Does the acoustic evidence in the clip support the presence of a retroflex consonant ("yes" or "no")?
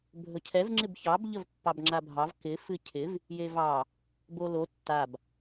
no